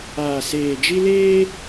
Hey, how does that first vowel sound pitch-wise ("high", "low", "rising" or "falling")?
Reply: low